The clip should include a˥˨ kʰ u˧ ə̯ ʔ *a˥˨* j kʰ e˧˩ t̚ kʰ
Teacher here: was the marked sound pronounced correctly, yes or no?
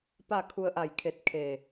no